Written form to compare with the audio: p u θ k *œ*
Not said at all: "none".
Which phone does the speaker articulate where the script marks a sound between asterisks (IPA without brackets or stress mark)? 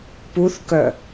œ